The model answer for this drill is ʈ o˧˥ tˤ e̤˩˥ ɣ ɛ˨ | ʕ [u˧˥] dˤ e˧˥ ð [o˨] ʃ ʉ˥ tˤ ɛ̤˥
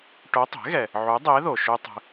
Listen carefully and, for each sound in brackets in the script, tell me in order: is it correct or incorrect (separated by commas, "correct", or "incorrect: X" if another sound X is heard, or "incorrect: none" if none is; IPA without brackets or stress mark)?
correct, correct